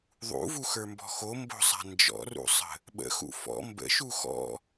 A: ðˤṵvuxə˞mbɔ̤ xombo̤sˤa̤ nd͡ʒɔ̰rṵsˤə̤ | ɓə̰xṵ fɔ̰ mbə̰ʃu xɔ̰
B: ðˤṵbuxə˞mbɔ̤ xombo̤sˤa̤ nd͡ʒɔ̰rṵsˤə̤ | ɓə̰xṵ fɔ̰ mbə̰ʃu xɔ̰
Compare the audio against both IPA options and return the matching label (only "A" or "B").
A